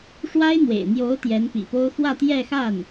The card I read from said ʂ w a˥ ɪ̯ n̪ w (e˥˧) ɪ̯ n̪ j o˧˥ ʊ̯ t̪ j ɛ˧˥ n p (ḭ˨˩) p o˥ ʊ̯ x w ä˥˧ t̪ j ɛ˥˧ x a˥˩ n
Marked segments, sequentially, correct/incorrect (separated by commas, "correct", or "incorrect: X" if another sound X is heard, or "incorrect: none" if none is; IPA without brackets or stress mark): incorrect: ḛ˨˩, correct